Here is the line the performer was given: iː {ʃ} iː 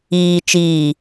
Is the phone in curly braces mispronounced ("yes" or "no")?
yes